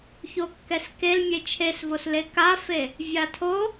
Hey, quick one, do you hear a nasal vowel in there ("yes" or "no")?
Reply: no